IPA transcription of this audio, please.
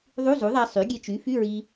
ðˤu˧˥˧zu˩˥ðˤæ˧ sˤy˩˥ɡʲe˧t͡ʃy˩˥ fy˧˥˧ɹi˧

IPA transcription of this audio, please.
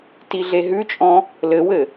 tiɮeɦʉt͡ʃʼɔ̃ | lɘwɘ

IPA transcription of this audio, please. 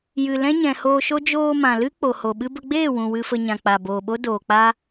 jɨ˨ lɛ̃˦ɲɛ̃˨hoː˧ʃo˦ d͡ʒoː˧mã˨lɨ˦ k͡po˨ho˨ɓɨ˦ bə˧ɡ͡beː˦˨wũ˨ wɨ˧fə˧ɲã˨ k͡pa˨boː˨ɓo˦ doː˨k͡pa˦

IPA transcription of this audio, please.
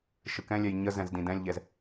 ʃɯkɛ̃lʲɛj ɲəzɛ̃zdĩ dɛ̃lʲʎɛz

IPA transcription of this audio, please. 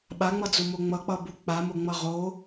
ɓaŋ͡mʌd͡zumo ŋ͡mʌk͡pʌbu k͡pamoŋ͡mʌ ʁo

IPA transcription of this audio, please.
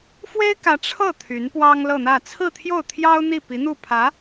fwe˥ɪ̯kä˧˥ ʈ͡ʂʰɤ˥˩ t̪ʰy˧˥npwɑ˥ŋlɤ˥˧n̪ä˥˧ t͡sʰɹ̩˥˧t̪ʰjo˥˩ʊ̯t̪ʰjɑ˥ʊ̯ n̪i˥˩pi˧˥ n̪u˥˩pʰä˧˥

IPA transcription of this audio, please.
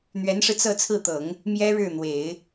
n̪ɥɛ˧˥nʂɻ̩˧t͡sɤ˥˧ t͡sʰɹ̩˥˩t̪ɤ˨˩˦ŋ | mjɛ˥ ɻɻ̩˥˩n̪we˨˩˦ɪ̯

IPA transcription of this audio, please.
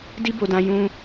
di˦bo˧dã˧ jũ˦

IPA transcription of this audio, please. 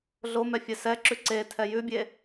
ɮomɛ fʲɛsɛǁʉ ǀe tʰɛjʉbʲe

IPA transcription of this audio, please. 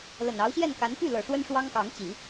lə˨˩nɑ˧˥ʊ̯ɕjɛ˥˩nka˧˥n py˥˩lɤ˨˩ ʂwə˥nʂwɑ˥ŋkɑ˧˥ŋt͡ɕi˨˩˦

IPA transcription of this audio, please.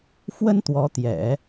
fwə˥n t̪wɔ˧˥t̪jɛ̰˨˩˦

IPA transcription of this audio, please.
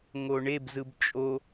ŋoɳeb zɯbt͡ʃʼo

